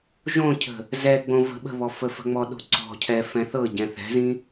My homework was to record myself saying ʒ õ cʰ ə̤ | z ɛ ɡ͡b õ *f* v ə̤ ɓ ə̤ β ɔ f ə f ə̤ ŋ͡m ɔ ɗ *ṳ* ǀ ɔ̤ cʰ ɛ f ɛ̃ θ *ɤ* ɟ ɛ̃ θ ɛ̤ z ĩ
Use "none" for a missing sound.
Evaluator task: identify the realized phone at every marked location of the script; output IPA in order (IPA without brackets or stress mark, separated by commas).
none, o̤, ɤ